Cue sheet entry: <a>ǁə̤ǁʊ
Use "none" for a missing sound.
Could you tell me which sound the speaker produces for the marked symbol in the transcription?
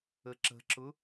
ə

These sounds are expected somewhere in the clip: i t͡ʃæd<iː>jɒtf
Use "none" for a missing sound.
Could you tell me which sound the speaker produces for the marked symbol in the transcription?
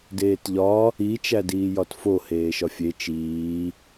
iː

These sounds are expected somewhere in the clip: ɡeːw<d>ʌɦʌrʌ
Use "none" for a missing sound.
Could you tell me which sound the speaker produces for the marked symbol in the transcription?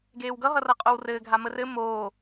ɡ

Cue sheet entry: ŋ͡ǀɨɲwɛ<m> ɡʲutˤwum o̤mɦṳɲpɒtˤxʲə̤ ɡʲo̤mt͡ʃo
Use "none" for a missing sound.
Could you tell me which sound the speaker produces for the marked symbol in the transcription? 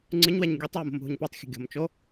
ɲ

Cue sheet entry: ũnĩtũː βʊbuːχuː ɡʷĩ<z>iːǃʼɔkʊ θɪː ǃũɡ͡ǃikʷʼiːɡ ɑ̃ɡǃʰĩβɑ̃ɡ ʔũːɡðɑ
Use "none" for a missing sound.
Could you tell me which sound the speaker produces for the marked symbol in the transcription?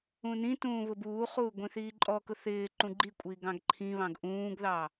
θ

